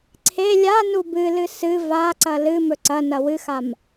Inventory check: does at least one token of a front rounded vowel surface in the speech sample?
no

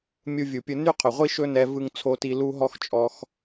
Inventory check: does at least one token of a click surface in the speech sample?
no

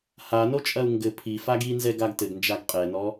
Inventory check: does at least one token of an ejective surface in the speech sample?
yes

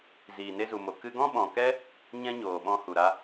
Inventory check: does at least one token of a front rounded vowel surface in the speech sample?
no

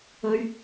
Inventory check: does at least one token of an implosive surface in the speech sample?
no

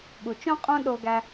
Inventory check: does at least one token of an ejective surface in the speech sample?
yes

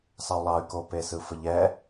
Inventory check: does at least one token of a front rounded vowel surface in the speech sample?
yes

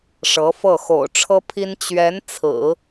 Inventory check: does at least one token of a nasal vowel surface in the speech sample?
no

